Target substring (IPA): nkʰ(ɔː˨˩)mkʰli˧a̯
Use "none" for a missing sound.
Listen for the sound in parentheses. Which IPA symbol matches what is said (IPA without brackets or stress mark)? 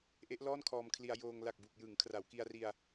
ɔː˧